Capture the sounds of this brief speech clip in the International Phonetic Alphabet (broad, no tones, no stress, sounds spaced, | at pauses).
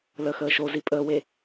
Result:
l ə x əː ʃ o z i pʼ əː w e